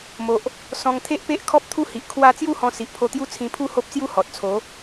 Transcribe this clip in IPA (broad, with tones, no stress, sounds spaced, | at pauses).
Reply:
m o˨ ʔ | s ɔ̃˧ ŋ t̪ʰ e˦ ʔ p e˦ ʔ kʰ ɔ˦ p̚ t̪ʰ u˦ h i˨ ʔ kʰ w a˦ t͡s j u˥˧ h ɔ̃˧ s i˨ ʔ pʰ o˧ t̪ j u˥˧ t͡sʰ ĩ˧ pʰ u˦ h o˦ p̚ t͡s j u˦ h ɔ˨ t̚ t͡sʰ o˨˦